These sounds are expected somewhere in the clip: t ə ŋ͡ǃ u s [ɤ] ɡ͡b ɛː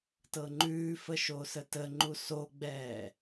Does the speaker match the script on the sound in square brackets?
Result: no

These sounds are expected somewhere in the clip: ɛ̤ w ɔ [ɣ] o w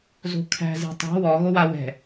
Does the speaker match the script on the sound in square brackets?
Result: yes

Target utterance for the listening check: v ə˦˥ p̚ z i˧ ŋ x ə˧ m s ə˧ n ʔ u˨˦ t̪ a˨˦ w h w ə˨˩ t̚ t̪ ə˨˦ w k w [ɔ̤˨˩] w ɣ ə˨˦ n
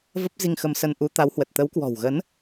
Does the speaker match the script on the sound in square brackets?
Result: yes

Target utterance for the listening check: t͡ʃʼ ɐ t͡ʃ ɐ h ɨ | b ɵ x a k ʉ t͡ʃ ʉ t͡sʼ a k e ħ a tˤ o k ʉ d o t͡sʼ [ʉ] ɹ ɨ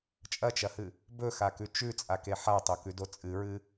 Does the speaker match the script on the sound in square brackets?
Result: no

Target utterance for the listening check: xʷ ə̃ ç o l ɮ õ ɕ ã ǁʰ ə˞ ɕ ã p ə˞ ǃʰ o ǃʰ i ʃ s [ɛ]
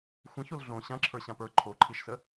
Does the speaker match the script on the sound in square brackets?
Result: no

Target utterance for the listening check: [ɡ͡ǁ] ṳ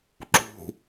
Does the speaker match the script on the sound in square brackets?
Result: no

